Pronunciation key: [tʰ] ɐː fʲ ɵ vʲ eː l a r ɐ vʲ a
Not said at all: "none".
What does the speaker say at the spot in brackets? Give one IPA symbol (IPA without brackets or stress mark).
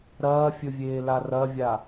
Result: ɾ